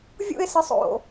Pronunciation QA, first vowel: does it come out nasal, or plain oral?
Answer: oral